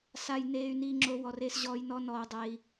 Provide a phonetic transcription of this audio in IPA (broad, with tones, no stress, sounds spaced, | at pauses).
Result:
s a˨ j n eː˧ y̯ n iː˧ ŋ͡ǁ o˧ w ɔ˨ r eː˧ s ʑ ɔː˧ j n ɔ˦ n ɔː˧ u̯ dˤ eː˦ i̯